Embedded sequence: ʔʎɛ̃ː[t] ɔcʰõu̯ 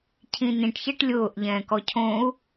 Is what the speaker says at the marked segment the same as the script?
no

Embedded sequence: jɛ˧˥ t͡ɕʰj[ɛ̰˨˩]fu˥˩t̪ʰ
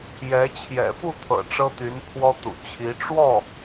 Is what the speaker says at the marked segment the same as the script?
yes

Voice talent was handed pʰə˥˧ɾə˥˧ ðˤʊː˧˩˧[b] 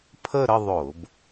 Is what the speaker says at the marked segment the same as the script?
yes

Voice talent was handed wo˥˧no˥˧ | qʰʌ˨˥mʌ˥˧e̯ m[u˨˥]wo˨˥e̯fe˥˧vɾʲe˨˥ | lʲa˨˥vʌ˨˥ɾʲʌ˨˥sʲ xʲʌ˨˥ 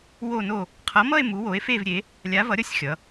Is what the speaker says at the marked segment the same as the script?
yes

